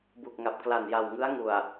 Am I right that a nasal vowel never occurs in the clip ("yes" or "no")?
yes